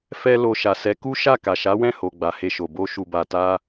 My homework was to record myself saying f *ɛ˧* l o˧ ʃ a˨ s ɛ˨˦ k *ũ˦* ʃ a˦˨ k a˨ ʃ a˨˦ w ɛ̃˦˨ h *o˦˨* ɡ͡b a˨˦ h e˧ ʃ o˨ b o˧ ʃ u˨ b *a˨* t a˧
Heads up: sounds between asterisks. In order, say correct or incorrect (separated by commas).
incorrect, incorrect, incorrect, correct